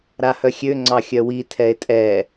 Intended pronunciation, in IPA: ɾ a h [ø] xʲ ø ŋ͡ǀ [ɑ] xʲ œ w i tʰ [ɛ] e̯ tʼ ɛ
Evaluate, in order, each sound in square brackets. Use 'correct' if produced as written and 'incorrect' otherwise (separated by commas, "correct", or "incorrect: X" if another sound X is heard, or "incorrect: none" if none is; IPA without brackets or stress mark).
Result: incorrect: œ, correct, correct